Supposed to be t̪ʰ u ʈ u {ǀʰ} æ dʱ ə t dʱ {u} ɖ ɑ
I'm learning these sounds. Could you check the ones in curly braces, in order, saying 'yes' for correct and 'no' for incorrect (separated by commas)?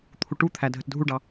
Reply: no, yes